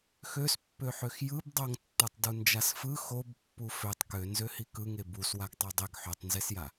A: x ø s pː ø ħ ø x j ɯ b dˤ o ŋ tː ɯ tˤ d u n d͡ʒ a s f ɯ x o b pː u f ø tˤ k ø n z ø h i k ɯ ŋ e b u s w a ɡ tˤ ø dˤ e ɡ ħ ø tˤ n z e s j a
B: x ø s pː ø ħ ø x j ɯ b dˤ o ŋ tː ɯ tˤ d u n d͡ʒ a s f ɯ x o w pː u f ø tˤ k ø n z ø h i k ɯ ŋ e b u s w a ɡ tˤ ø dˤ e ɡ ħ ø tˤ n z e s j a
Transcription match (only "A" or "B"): A